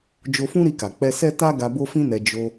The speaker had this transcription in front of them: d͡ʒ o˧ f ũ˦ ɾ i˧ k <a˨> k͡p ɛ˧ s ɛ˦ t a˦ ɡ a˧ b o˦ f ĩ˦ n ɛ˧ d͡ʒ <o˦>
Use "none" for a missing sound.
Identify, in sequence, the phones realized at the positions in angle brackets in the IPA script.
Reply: a˨, o˧

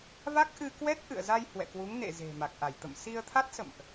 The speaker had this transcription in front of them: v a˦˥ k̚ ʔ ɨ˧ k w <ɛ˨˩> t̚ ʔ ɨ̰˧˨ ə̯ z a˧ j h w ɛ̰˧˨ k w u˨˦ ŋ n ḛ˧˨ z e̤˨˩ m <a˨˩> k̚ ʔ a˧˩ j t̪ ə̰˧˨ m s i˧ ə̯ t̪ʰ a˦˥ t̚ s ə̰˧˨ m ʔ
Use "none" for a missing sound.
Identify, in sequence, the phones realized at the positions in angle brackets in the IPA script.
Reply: ɛ˦˥, a˨˩

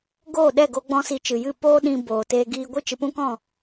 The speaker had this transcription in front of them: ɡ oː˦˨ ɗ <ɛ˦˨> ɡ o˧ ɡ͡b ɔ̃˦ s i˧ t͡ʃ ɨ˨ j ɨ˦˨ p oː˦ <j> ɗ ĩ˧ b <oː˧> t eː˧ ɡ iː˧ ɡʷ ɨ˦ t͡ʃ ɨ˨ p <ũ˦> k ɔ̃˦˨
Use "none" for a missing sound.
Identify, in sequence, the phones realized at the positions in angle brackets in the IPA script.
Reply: ɛ˦˨, none, oː˨, ũ˦

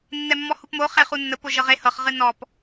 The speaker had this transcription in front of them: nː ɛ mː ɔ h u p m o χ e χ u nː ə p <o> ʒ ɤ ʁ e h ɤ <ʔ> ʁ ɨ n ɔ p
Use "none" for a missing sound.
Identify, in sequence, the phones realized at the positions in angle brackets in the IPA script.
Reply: o, χ

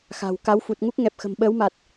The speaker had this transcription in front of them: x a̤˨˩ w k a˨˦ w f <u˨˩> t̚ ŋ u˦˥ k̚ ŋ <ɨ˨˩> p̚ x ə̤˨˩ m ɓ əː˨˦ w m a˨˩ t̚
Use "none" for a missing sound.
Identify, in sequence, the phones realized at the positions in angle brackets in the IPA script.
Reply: u˨˩, ɛ˨˩

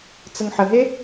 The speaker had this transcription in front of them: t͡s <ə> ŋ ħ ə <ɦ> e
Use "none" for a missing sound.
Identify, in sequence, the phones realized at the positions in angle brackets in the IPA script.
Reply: ə, ɦ

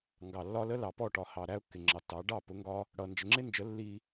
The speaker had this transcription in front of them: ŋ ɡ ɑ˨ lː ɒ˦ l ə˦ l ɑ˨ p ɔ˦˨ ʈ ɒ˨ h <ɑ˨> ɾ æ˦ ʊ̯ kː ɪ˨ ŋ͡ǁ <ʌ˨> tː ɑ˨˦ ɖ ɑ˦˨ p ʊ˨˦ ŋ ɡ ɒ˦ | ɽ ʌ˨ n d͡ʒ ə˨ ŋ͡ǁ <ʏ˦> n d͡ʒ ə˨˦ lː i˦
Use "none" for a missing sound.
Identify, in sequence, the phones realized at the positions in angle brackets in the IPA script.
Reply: ɑ˨, ɑ˨, ɪ˦

